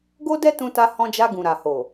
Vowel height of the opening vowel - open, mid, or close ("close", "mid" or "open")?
mid